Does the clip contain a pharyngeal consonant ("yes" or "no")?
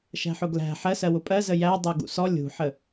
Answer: yes